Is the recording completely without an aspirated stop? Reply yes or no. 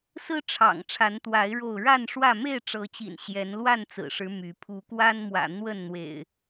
no